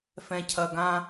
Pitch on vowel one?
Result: low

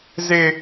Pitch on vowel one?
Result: high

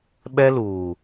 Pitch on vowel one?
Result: high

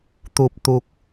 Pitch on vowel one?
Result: low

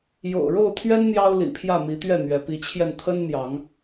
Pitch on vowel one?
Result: low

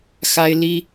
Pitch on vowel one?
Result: high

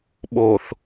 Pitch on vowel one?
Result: low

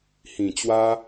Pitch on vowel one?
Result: low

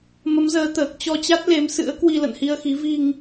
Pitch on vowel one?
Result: rising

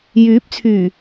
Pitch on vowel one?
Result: rising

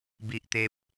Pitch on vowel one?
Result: high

